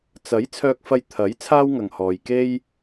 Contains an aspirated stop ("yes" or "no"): yes